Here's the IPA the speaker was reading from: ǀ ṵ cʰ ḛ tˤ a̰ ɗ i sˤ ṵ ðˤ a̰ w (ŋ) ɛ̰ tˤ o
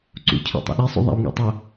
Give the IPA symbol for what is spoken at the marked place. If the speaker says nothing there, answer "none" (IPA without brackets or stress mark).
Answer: ŋ